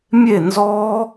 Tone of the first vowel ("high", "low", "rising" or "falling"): falling